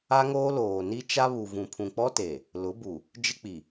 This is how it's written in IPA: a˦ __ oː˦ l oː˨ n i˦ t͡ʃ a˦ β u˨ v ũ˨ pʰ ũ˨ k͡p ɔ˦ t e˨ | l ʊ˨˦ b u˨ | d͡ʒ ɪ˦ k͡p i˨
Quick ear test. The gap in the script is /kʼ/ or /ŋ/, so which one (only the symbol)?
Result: ŋ